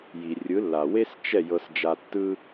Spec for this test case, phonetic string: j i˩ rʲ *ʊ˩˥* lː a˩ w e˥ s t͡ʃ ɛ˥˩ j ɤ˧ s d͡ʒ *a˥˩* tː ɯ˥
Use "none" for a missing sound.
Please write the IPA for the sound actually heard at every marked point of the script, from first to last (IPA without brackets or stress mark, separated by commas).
ɯ˩˥, a˧